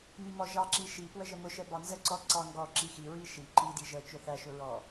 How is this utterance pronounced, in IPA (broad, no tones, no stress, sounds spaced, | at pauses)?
m i m ɔ ʒ ɑ ǁ i ʃ i p w ə ʒ ə m ʊ ʃ ɛ b ɑ n z ə ǀ ɔ ǀ ɑ ŋ ɡ ɔ ǁ i x i ɹ i ʃ i ǃ i d i ʒ ə t͡ʃ ʊ θ æ ʃ ʊ ɹ ɔ